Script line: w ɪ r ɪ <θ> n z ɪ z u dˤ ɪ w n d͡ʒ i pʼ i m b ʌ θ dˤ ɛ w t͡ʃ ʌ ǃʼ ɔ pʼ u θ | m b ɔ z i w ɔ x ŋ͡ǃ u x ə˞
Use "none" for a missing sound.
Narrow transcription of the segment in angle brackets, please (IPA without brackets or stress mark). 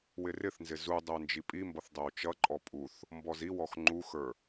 θ